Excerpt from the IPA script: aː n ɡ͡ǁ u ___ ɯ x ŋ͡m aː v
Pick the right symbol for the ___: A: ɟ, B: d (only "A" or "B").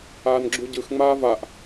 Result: A